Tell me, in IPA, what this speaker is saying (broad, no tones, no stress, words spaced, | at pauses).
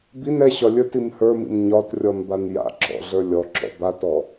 bin ɛɕɒ lʲə˞tim hə˞mḭm ɲɒtrʲɔn banja̰ǁɔ̰ ɮə˞lʲɔǁɔ̰ batɔ